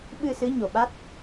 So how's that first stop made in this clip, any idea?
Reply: implosive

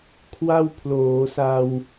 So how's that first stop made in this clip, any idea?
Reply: aspirated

